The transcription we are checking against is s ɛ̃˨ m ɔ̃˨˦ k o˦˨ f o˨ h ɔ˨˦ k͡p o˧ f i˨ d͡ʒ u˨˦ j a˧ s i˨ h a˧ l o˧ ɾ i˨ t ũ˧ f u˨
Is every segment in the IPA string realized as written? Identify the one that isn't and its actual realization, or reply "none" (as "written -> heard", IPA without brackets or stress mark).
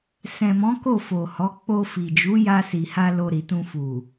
none